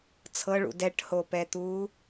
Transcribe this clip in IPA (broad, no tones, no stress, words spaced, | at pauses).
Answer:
t͡sʰɤɭṵ dɛʈhoːpɛːt̪uː